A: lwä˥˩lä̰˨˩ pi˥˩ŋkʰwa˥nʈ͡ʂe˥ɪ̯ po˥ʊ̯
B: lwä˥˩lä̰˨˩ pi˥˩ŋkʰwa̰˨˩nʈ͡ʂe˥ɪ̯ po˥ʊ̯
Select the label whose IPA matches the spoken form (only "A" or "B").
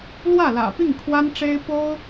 A